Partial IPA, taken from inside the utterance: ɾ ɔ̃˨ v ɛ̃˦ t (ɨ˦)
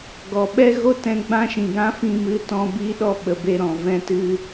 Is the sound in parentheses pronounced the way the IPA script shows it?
yes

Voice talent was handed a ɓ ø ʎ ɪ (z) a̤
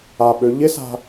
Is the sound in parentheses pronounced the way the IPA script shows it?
no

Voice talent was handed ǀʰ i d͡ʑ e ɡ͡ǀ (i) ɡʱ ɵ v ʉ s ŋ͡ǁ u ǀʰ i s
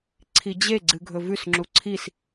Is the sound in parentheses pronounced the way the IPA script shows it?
no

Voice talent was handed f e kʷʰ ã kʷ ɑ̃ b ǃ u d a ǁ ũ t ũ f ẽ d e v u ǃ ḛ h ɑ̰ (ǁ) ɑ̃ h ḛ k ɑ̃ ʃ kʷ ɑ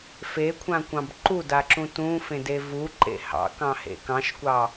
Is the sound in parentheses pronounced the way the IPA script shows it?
no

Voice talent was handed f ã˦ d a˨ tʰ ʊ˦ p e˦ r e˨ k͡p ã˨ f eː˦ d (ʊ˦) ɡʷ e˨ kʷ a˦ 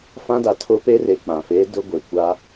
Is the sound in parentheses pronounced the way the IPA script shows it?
yes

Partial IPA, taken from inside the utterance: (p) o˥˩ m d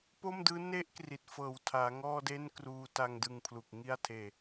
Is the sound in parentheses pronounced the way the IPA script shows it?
yes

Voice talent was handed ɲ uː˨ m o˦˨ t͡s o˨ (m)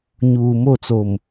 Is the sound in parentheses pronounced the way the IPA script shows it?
yes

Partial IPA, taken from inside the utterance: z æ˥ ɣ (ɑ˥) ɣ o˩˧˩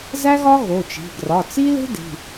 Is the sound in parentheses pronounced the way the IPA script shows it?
no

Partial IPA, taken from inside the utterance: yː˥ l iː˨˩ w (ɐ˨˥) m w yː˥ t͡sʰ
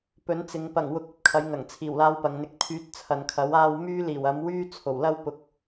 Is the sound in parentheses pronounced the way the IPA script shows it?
yes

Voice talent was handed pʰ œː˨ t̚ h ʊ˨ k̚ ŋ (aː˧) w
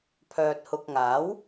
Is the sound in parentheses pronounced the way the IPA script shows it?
no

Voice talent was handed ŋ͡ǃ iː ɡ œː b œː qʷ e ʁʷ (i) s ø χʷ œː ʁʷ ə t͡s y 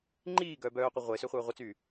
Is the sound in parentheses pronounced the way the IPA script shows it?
no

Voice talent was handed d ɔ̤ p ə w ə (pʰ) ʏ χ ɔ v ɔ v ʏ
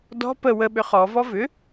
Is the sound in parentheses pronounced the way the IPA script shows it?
no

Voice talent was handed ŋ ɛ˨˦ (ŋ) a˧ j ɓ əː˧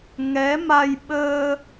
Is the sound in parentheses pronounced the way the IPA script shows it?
no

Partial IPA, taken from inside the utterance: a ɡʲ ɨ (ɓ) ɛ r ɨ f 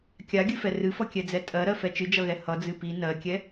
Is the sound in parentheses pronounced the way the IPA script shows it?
no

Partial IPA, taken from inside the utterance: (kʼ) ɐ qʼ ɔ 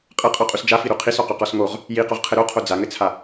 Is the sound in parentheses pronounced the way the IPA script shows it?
no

